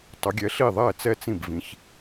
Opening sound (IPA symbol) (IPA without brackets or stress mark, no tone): tˤ